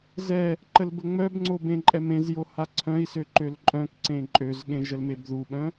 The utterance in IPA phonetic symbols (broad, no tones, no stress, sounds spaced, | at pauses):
z ɛ | ǃ ə l b ə ŋ͡m œ b ŋ͡ǀ o b ẽ ǃʼ ɛ m ẽ z j o h a ǀʰ œ̃ i̯ s ø ǃ ø l ǃʼ œ̃ k ǀ ẽ ǃʼ ø z ɠ ẽ ʒ ə l m e b ð u ɓ œ̃